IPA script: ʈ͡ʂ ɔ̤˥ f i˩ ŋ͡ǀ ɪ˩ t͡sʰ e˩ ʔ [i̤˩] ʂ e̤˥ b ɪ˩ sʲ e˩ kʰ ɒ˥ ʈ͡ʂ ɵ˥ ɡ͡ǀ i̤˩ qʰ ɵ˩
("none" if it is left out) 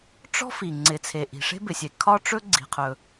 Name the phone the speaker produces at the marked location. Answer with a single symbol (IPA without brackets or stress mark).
i̤˩